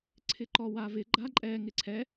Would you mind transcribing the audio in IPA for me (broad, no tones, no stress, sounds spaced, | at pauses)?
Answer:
ǀʰ ɪ ǃ ɔ w a v ɪ ɡ͡ǃ a ǃʼ ɛ ŋ ɪ ǀʰ ɛ